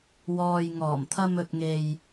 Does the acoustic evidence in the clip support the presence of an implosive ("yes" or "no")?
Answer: no